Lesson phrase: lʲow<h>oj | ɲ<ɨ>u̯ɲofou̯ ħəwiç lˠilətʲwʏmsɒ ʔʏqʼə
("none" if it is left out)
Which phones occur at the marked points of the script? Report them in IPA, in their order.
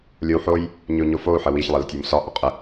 ħ, ʏ

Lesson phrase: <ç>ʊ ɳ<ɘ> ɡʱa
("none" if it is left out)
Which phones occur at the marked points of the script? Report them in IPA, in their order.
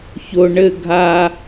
ç, ɘ

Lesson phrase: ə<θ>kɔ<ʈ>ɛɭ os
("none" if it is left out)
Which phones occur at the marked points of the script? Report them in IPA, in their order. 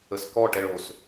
s, ʈ

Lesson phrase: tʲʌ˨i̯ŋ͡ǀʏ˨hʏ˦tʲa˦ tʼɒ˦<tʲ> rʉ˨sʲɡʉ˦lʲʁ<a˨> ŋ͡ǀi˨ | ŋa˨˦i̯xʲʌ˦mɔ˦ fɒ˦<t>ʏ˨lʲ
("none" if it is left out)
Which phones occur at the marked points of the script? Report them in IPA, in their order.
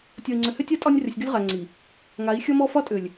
nʲ, a˨, tʼ

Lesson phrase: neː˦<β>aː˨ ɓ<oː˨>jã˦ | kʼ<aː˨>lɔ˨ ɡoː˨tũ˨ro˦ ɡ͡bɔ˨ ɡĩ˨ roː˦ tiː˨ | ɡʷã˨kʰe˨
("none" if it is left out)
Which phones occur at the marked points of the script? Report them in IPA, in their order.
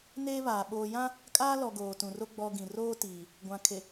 β, oː˨, aː˦

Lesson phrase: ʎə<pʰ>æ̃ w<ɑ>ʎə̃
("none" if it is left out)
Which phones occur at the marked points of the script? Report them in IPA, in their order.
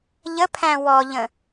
pʰ, ɔ

